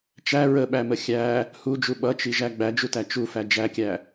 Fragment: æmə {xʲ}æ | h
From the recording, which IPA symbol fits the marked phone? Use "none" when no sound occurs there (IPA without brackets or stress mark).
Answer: xʲ